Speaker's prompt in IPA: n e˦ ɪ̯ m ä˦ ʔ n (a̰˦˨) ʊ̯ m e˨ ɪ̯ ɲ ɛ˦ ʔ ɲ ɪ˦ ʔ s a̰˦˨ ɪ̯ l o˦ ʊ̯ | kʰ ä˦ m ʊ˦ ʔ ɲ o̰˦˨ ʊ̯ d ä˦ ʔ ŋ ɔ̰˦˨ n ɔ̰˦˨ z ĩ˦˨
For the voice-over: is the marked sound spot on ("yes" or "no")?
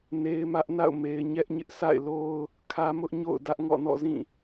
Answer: yes